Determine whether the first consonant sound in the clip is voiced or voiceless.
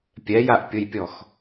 voiceless